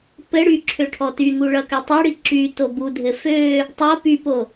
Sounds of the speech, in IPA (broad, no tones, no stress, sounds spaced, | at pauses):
p ɘ ɽ y ǁʰ ø ʈʰ ɔ t y ŋ u ɭ ʌ k ø tˤ o ɽ i ǁ y t o b u dʱ ɘ f ø | tˤ o p y p o